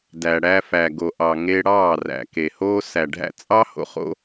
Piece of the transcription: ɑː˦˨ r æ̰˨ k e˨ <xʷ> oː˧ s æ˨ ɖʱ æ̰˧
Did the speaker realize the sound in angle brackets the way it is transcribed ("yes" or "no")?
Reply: no